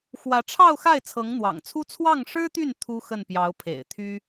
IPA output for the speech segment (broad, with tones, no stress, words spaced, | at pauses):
xwä˧˥ʈ͡ʂʰɑ˥˧ʊ̯xa˥˩ɪ̯ t͡sʰɤ˧˥ŋn̪wɑ̰˨˩ŋt͡sʰu˥ t͡sʰwɑ˥˩ŋʂɻ̩˥t̪y˥˩n t̪ʰu˥ xə˥˩npjɑ˧˥ʊ̯pʰḛ˨˩ɪ̯ t̪ʰy˥